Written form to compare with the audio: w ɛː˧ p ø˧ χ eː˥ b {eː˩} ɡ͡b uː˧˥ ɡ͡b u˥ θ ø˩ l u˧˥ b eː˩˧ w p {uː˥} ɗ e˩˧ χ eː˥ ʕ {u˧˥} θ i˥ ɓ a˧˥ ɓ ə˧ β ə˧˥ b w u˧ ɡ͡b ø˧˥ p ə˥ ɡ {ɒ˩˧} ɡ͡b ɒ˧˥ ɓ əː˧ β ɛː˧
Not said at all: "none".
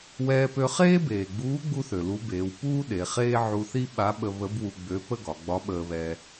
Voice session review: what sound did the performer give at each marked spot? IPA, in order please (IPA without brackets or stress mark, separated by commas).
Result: eː˩, uː˥, u˧, ɒ˩˧